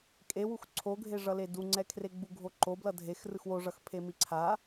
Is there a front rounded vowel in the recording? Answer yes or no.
no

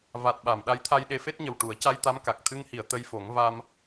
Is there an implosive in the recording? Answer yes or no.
yes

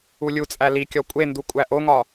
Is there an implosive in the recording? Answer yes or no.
no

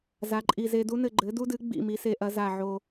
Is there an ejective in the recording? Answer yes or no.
yes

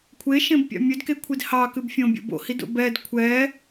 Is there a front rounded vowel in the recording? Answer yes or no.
no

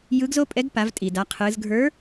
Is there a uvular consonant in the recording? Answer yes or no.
yes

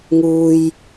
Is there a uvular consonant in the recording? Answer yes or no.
no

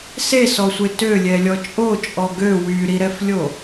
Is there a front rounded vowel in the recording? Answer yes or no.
yes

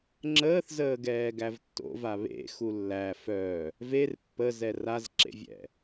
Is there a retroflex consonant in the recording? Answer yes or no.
no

